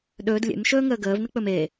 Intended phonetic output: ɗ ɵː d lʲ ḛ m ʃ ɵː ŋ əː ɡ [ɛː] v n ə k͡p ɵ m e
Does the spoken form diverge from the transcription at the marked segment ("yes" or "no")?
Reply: yes